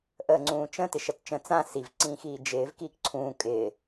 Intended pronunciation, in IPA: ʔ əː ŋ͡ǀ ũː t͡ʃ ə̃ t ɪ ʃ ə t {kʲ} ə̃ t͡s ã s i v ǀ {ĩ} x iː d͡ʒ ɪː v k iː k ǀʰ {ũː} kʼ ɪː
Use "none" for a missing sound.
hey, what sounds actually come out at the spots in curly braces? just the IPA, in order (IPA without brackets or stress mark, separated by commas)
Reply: t͡ʃ, ĩ, ũː